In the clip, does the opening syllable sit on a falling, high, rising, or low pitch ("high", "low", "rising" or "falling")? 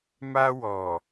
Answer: high